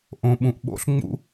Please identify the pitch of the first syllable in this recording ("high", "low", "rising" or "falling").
low